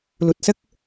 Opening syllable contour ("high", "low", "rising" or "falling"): low